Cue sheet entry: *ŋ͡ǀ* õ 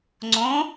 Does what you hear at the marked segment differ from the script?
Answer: no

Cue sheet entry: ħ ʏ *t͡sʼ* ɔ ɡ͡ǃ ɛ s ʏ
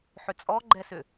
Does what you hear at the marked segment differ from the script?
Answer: no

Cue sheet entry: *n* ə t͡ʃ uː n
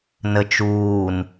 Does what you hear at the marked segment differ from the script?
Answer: no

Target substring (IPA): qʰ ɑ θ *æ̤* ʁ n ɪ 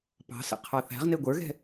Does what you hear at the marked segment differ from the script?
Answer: no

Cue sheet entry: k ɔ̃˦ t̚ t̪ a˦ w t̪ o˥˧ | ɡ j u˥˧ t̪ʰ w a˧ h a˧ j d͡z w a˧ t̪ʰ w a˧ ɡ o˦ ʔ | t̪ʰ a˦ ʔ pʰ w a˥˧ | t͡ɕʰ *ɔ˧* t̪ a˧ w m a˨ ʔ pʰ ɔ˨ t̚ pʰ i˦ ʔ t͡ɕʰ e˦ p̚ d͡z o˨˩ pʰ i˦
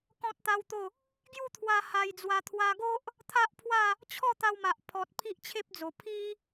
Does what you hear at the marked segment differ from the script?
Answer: yes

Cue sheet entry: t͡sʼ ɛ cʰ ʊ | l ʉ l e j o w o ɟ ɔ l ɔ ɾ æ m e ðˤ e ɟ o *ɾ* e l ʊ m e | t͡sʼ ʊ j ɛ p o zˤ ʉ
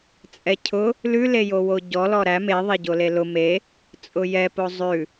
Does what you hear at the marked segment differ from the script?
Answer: yes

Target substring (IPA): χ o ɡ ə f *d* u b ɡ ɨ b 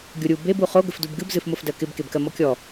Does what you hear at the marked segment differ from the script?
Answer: no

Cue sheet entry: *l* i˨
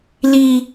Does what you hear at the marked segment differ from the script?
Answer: no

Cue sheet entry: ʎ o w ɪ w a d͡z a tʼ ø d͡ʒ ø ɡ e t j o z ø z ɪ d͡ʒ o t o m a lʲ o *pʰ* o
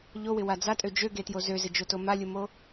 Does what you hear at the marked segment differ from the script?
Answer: yes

